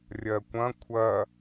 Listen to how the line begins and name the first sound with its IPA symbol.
rʲ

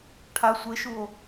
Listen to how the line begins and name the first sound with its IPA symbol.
ʈʰ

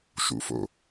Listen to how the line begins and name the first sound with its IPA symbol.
ʃ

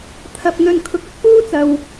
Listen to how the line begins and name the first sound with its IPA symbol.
t̪ʰ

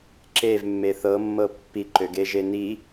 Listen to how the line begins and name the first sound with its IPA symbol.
ǁ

